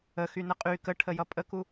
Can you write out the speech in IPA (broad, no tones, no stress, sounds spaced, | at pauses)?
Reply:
ə x y n ə qʼ y k ə ʈʰ ə j ʌ pʼ ə k u